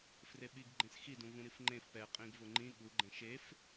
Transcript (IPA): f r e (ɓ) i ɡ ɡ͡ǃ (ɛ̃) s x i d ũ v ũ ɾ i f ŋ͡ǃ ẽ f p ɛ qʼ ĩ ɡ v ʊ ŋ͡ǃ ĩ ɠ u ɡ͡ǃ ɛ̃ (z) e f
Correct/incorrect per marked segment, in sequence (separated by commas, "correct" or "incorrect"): correct, incorrect, incorrect